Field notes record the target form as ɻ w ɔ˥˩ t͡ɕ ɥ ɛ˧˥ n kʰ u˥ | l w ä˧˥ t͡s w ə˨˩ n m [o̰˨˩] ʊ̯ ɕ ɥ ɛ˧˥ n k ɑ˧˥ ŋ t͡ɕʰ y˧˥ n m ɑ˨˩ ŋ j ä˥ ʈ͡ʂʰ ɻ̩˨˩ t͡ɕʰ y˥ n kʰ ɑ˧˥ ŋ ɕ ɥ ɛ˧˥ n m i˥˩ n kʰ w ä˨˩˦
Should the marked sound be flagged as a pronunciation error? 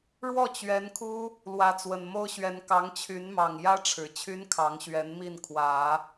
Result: yes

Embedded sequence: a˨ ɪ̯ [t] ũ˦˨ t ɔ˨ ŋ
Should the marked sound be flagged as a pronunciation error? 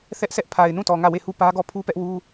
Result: yes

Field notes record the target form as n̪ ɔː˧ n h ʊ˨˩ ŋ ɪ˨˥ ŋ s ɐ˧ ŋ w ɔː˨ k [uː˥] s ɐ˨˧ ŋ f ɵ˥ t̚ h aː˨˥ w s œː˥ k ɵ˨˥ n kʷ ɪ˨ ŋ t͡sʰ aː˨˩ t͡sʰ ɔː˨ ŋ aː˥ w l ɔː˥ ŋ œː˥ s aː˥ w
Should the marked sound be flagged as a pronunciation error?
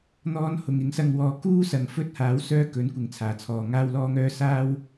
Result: no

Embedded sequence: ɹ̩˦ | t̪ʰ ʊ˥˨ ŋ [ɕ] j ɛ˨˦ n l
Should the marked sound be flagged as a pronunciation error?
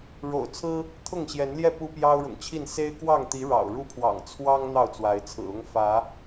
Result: no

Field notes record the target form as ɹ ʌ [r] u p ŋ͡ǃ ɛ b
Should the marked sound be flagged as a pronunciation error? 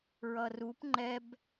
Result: no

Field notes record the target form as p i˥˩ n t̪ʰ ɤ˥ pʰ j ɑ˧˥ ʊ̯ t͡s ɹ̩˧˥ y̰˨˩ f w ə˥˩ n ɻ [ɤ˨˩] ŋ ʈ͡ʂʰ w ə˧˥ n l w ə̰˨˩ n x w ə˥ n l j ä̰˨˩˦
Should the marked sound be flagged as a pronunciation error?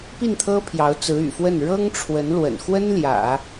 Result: yes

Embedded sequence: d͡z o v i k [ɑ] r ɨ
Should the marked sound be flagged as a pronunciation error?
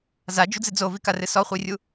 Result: yes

